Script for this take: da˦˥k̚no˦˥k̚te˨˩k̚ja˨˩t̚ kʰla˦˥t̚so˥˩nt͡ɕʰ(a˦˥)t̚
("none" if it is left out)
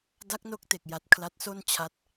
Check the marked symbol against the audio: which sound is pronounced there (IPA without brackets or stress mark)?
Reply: a˦˥